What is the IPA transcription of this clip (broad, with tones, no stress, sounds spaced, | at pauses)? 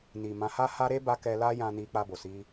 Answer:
n i˨ m ã˨˦ h a˧ h a˧ ɾ e˧ b a˦ k ɛ˧ l a˦ j ã˧ n i˧ k͡p a˧ b o˨ s i˧